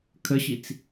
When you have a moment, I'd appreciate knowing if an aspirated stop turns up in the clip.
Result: yes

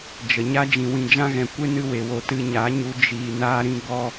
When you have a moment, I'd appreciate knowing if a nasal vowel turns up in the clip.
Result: yes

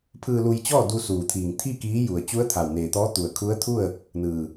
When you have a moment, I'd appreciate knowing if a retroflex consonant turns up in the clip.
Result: no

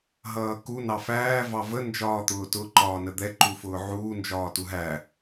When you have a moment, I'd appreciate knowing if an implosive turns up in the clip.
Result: no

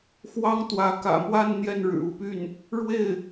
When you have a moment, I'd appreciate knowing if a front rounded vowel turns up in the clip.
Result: yes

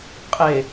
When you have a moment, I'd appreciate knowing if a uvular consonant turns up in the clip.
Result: yes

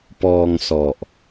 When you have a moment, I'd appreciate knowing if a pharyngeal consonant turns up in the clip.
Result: no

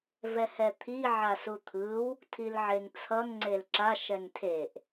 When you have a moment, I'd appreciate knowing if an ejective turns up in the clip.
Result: no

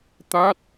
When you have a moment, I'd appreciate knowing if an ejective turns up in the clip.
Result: no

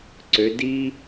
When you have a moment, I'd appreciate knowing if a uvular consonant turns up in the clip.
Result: no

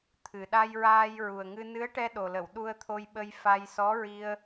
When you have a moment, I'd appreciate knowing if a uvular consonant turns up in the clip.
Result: no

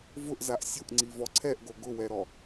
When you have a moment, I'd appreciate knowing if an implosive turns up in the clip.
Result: no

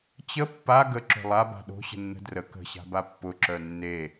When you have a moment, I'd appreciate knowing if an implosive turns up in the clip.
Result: yes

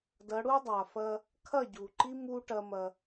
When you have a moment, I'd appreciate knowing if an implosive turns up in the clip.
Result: no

